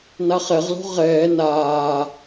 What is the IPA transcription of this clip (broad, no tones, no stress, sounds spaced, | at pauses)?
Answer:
n a χ ɛ ʁ l o̤ ʁ ɛː n aː